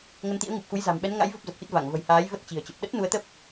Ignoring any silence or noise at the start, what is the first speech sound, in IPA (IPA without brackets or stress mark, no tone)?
ŋ